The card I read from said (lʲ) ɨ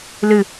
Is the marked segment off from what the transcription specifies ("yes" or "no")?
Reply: yes